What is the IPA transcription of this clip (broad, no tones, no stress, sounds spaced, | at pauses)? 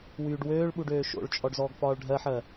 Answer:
w yː ɖ w øː ɭ ɓ u ɖ øː ʃ o̰ ɭ t͡ʃʼ ɔ ɖ z ɔː ɡ f ɒː ɭ ɖʱ ɜ ħ ɜ